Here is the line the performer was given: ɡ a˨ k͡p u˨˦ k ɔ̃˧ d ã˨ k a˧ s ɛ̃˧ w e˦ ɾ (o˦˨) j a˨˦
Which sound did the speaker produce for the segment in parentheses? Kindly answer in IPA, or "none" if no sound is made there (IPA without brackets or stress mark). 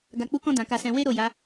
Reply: o˦˨